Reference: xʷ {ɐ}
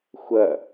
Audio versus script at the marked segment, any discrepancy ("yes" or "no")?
no